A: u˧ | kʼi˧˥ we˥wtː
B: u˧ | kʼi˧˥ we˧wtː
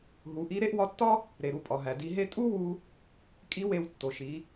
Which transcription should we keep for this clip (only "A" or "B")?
B